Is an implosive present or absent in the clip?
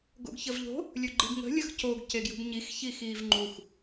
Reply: absent